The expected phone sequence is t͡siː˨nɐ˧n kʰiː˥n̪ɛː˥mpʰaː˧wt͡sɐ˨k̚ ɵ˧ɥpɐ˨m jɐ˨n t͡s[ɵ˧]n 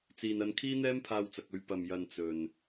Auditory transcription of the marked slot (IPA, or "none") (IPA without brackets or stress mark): ɵ˨